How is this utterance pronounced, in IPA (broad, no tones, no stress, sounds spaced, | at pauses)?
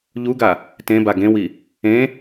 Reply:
ʎ u ɡ a | t ẽ b a ɡ ẽ w i | ẽ